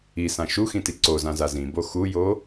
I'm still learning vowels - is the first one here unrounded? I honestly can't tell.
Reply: yes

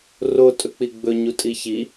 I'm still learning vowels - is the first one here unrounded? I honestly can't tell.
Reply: no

